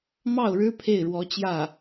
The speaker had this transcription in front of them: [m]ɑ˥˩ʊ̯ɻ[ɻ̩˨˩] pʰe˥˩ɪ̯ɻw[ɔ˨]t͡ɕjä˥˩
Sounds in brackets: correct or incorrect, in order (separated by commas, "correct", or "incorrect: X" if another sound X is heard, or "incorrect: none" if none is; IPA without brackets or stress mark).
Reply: correct, incorrect: ɻ̩˥, incorrect: ɔ˧˥